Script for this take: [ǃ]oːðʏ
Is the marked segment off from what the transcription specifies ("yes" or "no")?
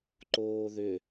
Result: no